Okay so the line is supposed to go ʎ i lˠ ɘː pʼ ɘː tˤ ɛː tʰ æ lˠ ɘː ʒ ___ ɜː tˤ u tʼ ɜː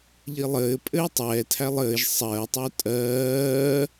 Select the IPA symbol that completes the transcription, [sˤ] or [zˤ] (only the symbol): sˤ